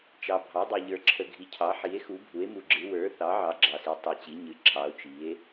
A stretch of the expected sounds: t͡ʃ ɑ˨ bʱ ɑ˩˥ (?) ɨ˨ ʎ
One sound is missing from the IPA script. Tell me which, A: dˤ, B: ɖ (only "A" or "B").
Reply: A